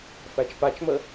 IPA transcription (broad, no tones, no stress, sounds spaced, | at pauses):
f æ t͡ʃ p a t͡ʃ m ə